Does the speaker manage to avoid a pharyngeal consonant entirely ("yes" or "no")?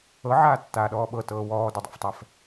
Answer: no